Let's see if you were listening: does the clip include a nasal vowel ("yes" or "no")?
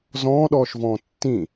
yes